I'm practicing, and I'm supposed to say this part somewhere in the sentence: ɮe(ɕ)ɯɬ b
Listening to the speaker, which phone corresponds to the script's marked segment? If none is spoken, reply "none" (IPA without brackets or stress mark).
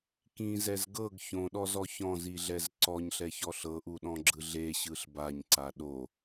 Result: ɕ